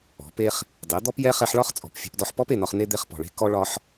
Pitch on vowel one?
rising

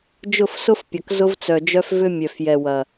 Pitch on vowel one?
falling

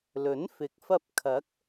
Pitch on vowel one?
rising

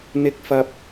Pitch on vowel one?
high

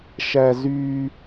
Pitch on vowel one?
high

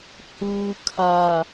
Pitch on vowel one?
low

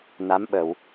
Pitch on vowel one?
rising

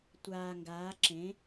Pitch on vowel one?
low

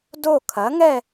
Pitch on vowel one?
falling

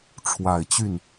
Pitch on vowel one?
low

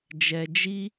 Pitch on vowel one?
low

